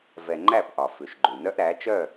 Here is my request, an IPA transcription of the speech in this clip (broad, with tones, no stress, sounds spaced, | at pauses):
v ɛ˨ ŋ͡ǃ æ˦˨ p ʔ ɒ˨ f ʉ˨ ʃ ɡ͡ǃ ʉ˨ n œ˦ ʔ ɾ æ˨˦ t͡ʃ œ˦˨